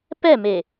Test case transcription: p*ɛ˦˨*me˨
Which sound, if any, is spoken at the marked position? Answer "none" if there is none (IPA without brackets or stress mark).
ɛ˦˨